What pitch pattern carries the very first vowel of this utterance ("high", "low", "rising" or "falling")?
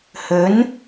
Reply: rising